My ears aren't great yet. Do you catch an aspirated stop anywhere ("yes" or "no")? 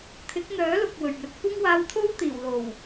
yes